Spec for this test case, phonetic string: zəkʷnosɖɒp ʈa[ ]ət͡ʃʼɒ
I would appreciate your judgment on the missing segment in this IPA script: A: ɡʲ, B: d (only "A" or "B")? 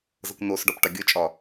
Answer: A